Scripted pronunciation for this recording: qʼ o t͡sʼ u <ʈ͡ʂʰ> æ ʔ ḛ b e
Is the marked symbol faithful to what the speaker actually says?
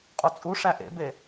no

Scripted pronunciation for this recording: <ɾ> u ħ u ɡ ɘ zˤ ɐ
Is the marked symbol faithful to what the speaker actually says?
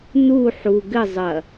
no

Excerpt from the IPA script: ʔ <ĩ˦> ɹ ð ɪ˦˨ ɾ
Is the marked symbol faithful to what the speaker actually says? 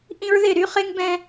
yes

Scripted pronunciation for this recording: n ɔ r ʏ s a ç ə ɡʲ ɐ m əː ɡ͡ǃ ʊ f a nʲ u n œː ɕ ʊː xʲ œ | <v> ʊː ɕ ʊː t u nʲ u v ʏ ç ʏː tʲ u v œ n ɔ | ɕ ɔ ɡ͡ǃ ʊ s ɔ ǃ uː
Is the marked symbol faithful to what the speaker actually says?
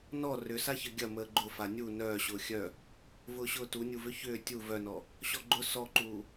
yes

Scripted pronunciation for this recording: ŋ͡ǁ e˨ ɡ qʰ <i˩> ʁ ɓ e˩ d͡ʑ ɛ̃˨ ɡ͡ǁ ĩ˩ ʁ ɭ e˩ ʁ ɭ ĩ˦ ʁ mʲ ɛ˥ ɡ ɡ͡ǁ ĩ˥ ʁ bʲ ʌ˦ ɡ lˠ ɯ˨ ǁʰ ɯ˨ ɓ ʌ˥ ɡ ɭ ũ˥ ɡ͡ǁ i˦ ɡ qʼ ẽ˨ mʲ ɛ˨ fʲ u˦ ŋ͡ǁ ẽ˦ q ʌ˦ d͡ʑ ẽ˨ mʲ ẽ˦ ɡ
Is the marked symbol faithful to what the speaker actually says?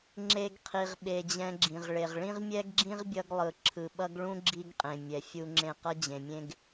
yes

